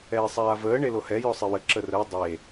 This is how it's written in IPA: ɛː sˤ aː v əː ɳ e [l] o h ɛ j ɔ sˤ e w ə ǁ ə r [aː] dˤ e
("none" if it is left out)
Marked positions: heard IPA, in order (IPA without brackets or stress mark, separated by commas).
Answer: l, əː